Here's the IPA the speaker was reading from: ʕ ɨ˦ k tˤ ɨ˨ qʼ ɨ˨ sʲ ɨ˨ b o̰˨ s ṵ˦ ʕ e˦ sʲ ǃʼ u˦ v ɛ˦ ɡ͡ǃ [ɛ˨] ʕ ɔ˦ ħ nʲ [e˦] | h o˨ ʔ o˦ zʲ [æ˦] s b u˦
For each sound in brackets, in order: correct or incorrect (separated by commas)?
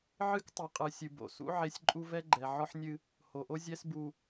correct, incorrect, incorrect